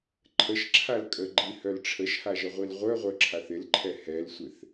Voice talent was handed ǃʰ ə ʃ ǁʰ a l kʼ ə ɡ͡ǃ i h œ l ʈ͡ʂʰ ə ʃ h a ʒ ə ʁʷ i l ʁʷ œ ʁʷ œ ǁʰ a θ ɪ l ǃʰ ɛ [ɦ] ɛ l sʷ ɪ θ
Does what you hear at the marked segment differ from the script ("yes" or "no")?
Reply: yes